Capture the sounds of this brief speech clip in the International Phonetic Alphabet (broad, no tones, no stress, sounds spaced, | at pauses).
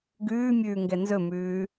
ɡ ʉː mʲ ʉː ŋ ɡ ɛ n z ɵ m ʉː